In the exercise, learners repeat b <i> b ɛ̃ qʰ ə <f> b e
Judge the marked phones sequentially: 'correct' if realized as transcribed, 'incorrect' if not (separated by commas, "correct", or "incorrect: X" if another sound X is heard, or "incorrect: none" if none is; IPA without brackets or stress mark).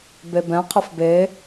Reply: incorrect: e, correct